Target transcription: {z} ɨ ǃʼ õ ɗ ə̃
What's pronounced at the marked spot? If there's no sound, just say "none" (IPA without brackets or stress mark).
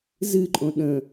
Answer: z